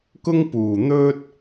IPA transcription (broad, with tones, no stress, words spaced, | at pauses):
kʊ˥ŋpuː˨˩ n̪ɵ˥t̚